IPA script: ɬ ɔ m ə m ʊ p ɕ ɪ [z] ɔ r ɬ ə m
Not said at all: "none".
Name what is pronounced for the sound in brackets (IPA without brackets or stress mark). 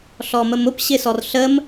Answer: s